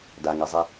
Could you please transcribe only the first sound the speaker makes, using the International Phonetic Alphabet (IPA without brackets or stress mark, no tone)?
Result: d